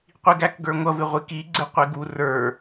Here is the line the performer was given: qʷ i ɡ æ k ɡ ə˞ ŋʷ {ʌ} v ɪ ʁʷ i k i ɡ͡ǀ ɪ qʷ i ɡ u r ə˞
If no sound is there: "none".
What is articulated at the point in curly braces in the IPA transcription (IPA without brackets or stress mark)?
ʌ